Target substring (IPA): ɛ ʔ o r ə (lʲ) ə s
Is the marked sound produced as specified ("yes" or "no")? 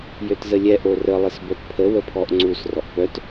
no